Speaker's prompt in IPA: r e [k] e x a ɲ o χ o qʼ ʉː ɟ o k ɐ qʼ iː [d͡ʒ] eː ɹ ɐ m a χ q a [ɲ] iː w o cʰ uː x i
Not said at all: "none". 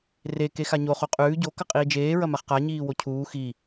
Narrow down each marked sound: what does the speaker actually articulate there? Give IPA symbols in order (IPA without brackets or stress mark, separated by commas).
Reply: k, d͡ʒ, ɲ